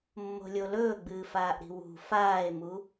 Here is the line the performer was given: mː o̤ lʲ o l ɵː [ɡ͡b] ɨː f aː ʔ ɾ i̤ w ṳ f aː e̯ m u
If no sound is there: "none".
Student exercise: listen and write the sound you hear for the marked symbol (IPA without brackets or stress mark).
ɡ͡b